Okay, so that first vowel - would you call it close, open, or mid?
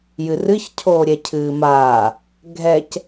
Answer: close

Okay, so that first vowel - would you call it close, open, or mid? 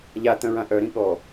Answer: open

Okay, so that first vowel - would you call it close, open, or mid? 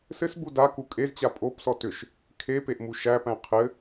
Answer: mid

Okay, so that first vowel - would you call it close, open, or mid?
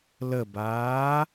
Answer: mid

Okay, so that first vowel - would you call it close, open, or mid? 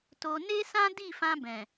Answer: mid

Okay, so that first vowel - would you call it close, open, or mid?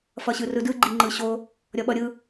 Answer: mid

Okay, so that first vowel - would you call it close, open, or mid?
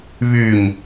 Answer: close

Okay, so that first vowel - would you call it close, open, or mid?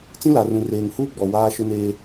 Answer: close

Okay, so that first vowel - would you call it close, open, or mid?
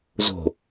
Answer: mid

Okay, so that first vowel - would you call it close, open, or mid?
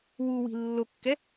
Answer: close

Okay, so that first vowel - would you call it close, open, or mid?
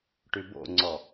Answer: close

